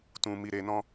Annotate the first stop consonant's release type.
plain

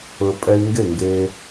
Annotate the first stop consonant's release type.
ejective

